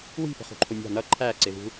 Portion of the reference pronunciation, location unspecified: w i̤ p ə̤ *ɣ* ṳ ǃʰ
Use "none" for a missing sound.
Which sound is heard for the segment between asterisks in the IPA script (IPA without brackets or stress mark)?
χ